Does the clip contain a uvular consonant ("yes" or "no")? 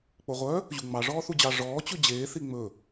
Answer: yes